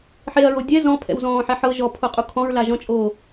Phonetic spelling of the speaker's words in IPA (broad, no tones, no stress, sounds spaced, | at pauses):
ħ e ɐ̯ ɹ o dʲ ɛ z ɔ̃ pʰ ɛ̰ w z ɔ̃ː ħ ɛ ħ ɤ ʒ ɔ pʰ o qʼ u kʰ ɔ̃ ɹ l a ʒ ɔ̃ t͡ʃʼ oː